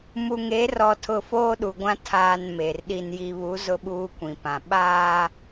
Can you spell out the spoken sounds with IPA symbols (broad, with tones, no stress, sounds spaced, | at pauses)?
m u˨ ŋ e˨˦ r ɔ˨ tʰ ʊ˨ f oː˦ ɗ u˨ ɡʷ ã˦ tʰ aː˨ n m e˨ r ɗ i˨ n j i˨ β u˨˦ z ʊ˦ ɓ uː˦ kʷ ĩ˨ p ã˨ ɓ aː˦